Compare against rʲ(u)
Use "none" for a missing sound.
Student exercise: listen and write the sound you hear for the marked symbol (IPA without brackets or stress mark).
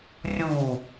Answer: u